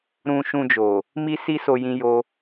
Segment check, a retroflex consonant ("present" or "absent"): absent